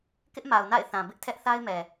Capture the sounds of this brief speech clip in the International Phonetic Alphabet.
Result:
k ɪ˦ ʔ m a˨ ʊ̯ n a̰˦˨ ɪ̯ θ ã˨ b ɪ˦ ʔ tʰ ɛ˦ ʔ θ a˦ ɪ̯ m ɛ˨

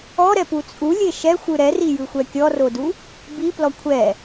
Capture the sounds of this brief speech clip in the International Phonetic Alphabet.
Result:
ɔ ɾ ɛ p u t͡sʼ u lʲ e ʃ ɛ xʷ ɯ ɾ ɛ r i j ɯ xʷ ɛ kʲ ɔ r o d u | b i p l ɔ kʷʰ ɛ

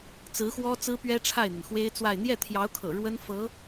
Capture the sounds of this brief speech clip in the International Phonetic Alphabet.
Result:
t͡s ɹ̩˧˥ x w ɔ˥ t͡s ɹ̩˥ p ɥ ɛ˥ ʈ͡ʂʰ a˥˩ ɪ̯ n̪ ə˩ n x w e˥ ɪ̯ t͡s w a˥˧ ɪ̯ n̪ j ɛ˥˩ t̪ʰ j ɑ˧˥ ʊ̯ kʰ ɤ̰˨˩ ɻ w ə˥ n f ɤ˧˥

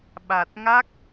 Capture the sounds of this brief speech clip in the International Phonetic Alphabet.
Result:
ɓ a˨˩ t̚ ŋ a˦˥ k̚

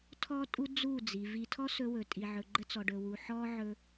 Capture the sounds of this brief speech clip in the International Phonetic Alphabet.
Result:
tʰ ɔ˦ tʼ u˦ d͡z u˦˨ d͡z i˨ v i˧ tʰ ɔ˦ s ɵ˧ w ɵ˨ tʼ i˨ ʕ ɵ˨ ɡ͡ǃ ə˧ t͡s ɔ˨ ɖ ɵ˨ w u˨ ħ ɔ˦ ʕ ɵ˧

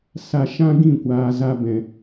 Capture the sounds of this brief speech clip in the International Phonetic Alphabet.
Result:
s a˧ ʃ ã˦ ɡ ĩ˦˨ kʷ aː˨ z a˧ b ɛ̃˨

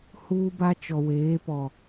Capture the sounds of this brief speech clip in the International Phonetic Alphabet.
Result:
h uː˦ b a˦ t͡ʃ ɔ˨ w eː˨˦ p ɔ˨

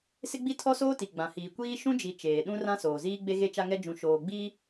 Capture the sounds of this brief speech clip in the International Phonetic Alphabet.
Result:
s ɪ˦ ɡ͡b i˦ tʰ ɔ˦ s oː˦ t i˨ ɡ͡b ã˨ h iː˨ kʷ iː˦ ʃ ũ˦ d͡ʒ i˨ t͡ʃ eː˨ ɗ ũ˦ r ã˦ s oː˨ z iː˦ ɡ͡b e˦ ɣ e˦ t͡ʃ a˦ ŋ ɛ˦ d͡ʒ ũ˨ ʃ oː˨ ɡ͡b iː˦

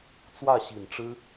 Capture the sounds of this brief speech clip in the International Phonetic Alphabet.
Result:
t͡s w ä˥˩ ɕ i˨˩ n ʈ͡ʂ ɻ̩˥

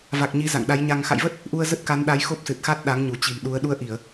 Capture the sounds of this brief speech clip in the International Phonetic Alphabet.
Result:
v a˨˩ k̚ ɲ i˨˦ z a̰˧˨ ŋ ɗ a˨˦ j ɲ a˧ ŋ x a̰˧˨ j v ə˦˥ t̚ | ʔ u˧ ə̯ z ə˦˥ t̚ k a˨˦ n ɗ a˨˦ j x o˦˥ p̚ s ɨ˨˩ t̚ x a˦˥ t̚ ɗ a˨˦ ŋ ɲ u˧˩ t͡ɕ i̤˨˩ n ɗ u˨˦ ə̯ ɗ u˧ ə̯ ʔ i˧˩˨ ə̯

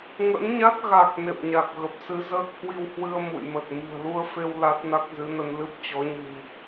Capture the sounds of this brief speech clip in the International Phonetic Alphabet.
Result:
ŋ ə̰˧˥ n ɲ a˦˥ t̚ ɣ a˨˩ k̚ n ḛ˧˨ m ɲ a˨˩ k̚ ɣ ə˨˩ p̚ s ɨ˨˦ z əː˦˥ k̚ h w i˧ w h w ɨ˧ ə̯ m ṵ˧˨ j m ə˨˩ t̚ m ɨ̤˨˩ ə̯ l u˧ ə̯ f e˧ w l a˦˥ t̚ n a˦˥ k̚ z ɨ˨˦ n ə˧ n l ɨ˦˥ p̚ t͡ɕ ɔ˨˦ ɲ ɨ̤˨˩ m

